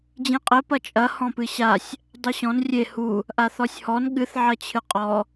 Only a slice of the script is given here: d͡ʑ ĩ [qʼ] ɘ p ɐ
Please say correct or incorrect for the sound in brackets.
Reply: correct